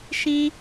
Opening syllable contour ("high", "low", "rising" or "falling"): high